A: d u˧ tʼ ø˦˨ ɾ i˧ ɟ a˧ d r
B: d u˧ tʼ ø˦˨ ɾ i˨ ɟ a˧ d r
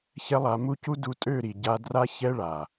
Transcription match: B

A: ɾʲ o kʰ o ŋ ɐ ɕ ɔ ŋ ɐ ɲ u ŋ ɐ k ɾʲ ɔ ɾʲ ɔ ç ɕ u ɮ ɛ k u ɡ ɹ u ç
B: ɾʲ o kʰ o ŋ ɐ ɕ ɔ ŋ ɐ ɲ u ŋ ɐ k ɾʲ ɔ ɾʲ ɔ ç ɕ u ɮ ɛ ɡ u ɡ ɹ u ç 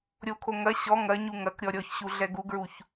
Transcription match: B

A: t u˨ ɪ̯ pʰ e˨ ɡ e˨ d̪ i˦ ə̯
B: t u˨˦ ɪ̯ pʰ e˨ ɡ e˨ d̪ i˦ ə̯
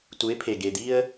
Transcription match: B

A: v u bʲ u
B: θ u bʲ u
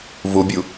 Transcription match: A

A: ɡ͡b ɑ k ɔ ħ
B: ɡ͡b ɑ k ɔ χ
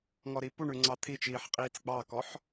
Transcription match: A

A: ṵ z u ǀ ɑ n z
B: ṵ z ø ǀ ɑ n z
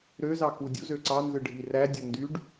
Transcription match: B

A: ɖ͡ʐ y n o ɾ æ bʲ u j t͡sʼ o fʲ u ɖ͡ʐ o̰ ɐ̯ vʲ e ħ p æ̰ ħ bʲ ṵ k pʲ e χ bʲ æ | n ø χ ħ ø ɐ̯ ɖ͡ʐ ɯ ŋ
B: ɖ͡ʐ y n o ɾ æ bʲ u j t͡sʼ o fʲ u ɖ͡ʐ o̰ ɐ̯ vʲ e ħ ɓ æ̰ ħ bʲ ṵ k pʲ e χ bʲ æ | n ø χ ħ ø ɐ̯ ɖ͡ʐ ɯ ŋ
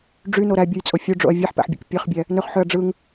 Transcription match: A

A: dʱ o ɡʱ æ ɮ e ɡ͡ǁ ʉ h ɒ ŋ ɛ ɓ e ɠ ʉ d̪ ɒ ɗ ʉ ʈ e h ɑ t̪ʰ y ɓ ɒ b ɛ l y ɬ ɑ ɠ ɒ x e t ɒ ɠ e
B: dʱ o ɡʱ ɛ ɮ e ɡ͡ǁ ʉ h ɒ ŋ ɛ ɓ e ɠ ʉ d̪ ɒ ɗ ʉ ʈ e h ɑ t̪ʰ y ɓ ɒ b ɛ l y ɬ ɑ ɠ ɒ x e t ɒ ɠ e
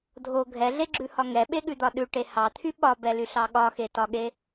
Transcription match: B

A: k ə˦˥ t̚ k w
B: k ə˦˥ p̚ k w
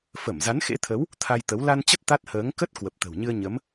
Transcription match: A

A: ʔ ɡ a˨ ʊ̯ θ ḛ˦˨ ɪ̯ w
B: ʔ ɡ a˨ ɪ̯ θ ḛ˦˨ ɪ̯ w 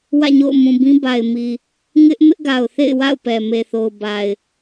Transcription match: A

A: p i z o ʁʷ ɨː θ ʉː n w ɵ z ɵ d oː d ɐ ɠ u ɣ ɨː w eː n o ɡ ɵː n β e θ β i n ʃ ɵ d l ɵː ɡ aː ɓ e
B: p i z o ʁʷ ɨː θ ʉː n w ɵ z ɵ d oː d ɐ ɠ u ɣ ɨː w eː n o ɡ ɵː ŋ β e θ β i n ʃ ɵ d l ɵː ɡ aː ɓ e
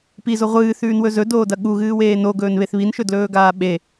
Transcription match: A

